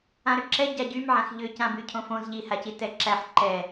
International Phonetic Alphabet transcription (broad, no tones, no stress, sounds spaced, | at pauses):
ã ɾ ʏ ǁʰ ɛ ɟ a ɟ y m ʕ ã x ʎ ʏ c ã b y cʰ õ f õ z ʎ i h a c i t ɛ ǁ æ ħ ǃ ɛ